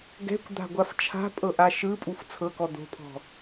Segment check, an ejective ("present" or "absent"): present